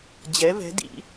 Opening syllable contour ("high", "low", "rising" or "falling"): rising